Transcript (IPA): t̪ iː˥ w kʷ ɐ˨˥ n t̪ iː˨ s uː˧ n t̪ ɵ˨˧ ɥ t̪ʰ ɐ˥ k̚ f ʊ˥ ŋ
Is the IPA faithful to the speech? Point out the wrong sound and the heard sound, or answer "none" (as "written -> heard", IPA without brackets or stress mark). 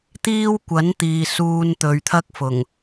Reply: ʊ˥ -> ʊ˨˩